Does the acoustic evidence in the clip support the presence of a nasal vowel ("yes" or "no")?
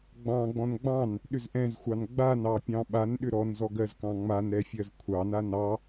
yes